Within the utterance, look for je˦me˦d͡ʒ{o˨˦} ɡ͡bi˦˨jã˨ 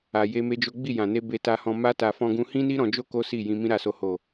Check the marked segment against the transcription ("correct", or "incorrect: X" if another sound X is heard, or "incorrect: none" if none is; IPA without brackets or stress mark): incorrect: o˦